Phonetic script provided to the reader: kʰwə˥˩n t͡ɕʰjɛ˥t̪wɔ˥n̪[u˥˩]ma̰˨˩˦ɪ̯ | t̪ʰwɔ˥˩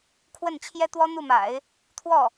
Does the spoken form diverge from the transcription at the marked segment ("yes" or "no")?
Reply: no